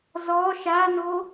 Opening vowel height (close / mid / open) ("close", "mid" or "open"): mid